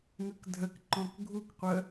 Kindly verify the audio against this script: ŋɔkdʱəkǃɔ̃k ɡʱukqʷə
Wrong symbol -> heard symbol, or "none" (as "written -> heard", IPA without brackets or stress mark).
ɔ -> ə